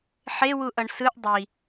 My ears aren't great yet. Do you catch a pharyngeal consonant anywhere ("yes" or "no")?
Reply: yes